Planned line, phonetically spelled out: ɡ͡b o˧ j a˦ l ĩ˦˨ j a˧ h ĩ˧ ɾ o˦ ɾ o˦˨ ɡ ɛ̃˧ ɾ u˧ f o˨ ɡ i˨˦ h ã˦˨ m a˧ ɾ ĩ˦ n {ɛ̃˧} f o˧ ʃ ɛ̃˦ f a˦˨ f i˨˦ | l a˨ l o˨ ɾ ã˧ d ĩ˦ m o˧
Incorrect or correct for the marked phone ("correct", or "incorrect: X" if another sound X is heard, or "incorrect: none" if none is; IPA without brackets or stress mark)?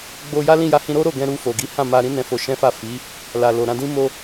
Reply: correct